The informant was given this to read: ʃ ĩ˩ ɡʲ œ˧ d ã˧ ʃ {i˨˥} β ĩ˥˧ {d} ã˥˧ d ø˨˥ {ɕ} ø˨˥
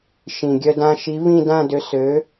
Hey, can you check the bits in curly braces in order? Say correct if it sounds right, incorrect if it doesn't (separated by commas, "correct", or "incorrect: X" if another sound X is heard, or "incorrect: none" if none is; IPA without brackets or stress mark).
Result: correct, correct, incorrect: s